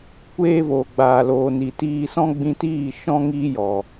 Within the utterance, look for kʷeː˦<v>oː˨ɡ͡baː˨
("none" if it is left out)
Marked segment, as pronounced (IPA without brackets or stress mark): v